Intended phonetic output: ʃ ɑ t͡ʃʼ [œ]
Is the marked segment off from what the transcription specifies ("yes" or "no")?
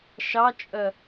no